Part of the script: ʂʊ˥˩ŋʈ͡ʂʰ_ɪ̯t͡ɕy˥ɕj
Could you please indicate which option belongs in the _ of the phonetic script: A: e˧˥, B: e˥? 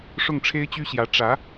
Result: B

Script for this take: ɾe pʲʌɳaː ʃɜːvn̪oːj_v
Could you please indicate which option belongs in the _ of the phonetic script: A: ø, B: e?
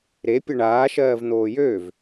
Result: A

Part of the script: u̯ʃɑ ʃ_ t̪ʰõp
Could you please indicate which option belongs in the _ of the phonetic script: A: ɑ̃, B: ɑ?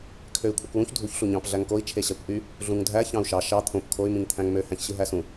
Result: B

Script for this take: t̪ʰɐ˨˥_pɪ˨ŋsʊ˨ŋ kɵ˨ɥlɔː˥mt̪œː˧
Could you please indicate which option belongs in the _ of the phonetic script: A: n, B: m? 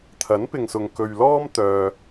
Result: A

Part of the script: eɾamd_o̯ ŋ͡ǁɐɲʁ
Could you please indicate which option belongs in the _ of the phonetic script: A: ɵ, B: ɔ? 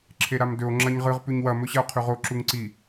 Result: A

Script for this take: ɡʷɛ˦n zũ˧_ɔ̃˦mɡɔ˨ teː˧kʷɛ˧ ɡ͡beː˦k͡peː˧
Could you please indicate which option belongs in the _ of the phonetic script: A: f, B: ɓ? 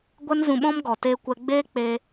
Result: B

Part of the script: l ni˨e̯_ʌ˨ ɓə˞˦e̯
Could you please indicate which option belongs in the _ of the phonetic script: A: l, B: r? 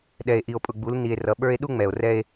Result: B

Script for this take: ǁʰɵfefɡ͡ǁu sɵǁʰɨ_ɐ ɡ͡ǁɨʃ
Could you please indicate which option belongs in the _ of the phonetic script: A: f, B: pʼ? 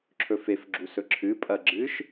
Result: B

